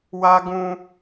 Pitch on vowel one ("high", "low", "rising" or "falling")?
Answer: high